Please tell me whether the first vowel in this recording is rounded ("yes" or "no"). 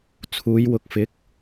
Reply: yes